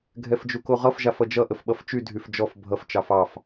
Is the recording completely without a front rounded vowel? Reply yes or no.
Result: no